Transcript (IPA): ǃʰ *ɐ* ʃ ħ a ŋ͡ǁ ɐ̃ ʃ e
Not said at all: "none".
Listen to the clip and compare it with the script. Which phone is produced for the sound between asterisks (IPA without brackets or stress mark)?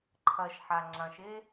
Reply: ɐ